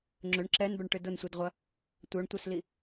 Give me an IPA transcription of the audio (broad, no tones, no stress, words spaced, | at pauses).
ŋ͡ǁøɳ ǁɛnbœɳʈʏ dʊnsʷidʁʷɐ | tʷœɳtʷœsli